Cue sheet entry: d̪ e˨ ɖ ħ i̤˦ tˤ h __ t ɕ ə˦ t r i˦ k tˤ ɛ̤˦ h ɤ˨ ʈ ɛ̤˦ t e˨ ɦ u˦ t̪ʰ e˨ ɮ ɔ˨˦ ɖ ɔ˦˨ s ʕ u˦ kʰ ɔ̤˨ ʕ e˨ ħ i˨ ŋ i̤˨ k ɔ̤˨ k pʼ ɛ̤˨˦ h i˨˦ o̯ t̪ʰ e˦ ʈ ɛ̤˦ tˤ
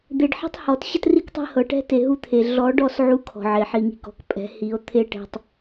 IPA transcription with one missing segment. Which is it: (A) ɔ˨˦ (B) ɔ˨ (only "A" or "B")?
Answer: B